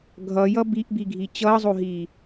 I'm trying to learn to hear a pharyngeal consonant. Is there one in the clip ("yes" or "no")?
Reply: no